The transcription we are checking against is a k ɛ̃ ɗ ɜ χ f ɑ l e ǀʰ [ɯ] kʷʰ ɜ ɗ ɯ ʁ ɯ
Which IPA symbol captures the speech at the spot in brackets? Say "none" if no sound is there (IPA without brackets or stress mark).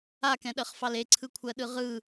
ɯ